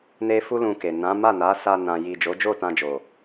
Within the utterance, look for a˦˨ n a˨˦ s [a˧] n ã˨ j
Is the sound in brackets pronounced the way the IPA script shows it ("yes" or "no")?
yes